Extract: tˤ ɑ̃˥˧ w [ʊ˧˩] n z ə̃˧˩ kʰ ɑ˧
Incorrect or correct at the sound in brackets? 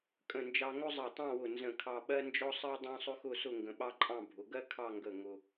correct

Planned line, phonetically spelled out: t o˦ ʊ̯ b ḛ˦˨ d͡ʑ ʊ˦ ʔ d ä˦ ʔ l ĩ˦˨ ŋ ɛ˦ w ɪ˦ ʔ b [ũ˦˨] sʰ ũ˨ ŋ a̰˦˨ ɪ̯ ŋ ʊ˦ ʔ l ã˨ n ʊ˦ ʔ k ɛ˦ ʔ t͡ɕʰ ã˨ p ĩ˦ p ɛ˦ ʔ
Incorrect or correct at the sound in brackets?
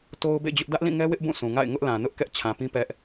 correct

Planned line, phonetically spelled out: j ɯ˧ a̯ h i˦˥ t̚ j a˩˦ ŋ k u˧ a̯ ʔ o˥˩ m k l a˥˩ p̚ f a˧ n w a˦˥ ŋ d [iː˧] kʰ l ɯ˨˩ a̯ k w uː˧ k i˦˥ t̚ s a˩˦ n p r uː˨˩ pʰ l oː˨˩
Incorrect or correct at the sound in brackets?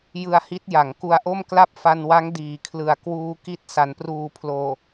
incorrect: iː˩˦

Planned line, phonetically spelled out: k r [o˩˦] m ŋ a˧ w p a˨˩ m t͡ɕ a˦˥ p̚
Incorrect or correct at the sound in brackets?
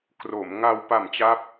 correct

